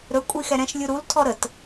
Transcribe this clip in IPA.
ɾ ɵ kʷʼ i x ɛ ɾ ɛ̃ ʃ lʲ u ɾ u l tʰ ɔ ɾ ə t

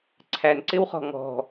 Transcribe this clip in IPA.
ǀʰ æ n ǀ ɪ w χ ɔ̤ ŋ ɔ̤

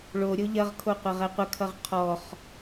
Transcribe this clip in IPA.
ɭ o ɾʲ o ʎ ɐ ʁ kʰ o qʷ ɐ ʁ ɛ qʷ ə kʰ ʌ ʁ qʰ ɔ χ

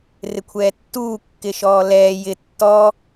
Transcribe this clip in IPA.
r ɪ kʷʰ ɛː tː uː kː ɪ ʃ ɔː l ɛː j ɪ tː ɔ

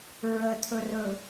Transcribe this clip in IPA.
ɹ ə tʰ ɵ r ɵ

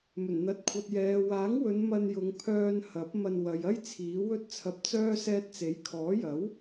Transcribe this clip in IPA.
m ɵ˨˩ n n̪ ɐ˨ t̚ kʷʰ ɐ˨ t̚ j ɛː˨ w aː˨˥ ŋ w ɵ˨˧ n m ɐ˧ n j ʊ˨˧ ŋ pʰ œː˧ n h ɐ˨˥ p̚ m ɐ˧ n w ɐ˨˧ j ɐ˥ j t͡sʰ iː˨˥ w ɵ˥ t̚ t͡sʰ ɐ˧ p̚ t͡s œː˥ s ɛː˧ t̚ t͡s e˨˥ j kʰ ɔː˨˥ j ɐ˨˥ w

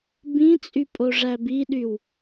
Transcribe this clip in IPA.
b ĩ t͡sʼ y pʼ o ʐ æ b i ɗ y w

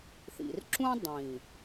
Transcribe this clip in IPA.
θ ḭ˨ r ǁ ũ˦ dˤ ĩ˨

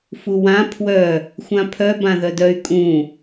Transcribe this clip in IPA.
f u w ã pʰ w œ | xʷ ã pʰ œ b ã ð œ d œ y̯ kʼ ũ

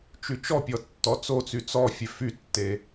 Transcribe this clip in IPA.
t͡ʃ y t͡ʃ ɔ pʲ ɔ tː ɔ t͡s o t͡s y t͡s ɔ fʲ e f y tː e

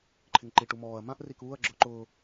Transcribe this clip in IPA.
ǃʰ ɪ ŋ ǃ i ʈ u m ɔː ɐ̯ m ã ʔ r i k uː ɐ̯ ɡ͡ǁ ʊː ǃ ʊː

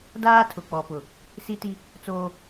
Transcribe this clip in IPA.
d aː˦ tʰ ʊ˨ k͡p ɔ˨ p ʊ˨ | s i˦ t i˦ | t͡s oː˦

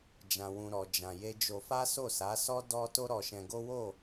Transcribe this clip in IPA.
d͡ʒ ã˧ w ũ˧ ɾ ɔ˧ d͡ʒ ã˧ j e˧ d͡ʒ o˧ f a˦ s o˦˨ s a˨˦ s ɔ˦ d ɔ˦ t o˦ ɾ ɔ˧ ʃ ɛ̃˧ ɡ o˦ w o˦˨

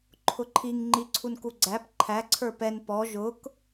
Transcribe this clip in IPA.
ǃʰ ʊ ǃʰ i ŋ ŋ͡ǃ i ǀʰ u n k u ɡ͡ǀ æ p ǃʰ æ ǀʰ ə˞ p ɛ n p ɔ ʒ ʊ k

